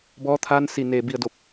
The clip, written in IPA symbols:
b ɔː˧ t̪ʰ aː˧ n s i˧˩ n eː˧˩ b i˧˩ ə̯ d o˧˩ p̚

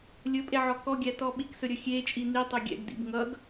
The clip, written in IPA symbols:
lʲ ɵ pʼ e ʕ ɔ k ɔ ɡʲ æ t ɔ ɓ i k s ɵ ɾʲ ɵ xʲ e t͡ʃʼ i n̪ i tˤ ɵ ɡʲ ɛ̰ ɡ d̪ ḭ b ŋ ʌ ɡ

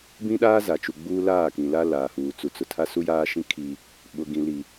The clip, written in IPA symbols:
b ĩ˦ ɗ aː˦ z a˨ t͡ʃ u˨ ɡ͡b uː˦ l aː˦˨ k ĩ˨ l a˦ l aː˨ h uː˨ t͡s u˨ t͡s ʊ˨ tʰ a˦ s u˦ j aː˦ ʃ ĩ˦ kʰ i˦ | ɓ ʊ˨ ɡ ĩ˨ l i˨

